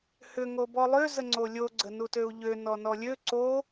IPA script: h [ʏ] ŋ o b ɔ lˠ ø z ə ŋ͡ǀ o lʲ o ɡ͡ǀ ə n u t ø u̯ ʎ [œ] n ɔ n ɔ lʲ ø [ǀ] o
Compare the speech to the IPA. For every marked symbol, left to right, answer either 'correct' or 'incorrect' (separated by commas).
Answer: correct, incorrect, correct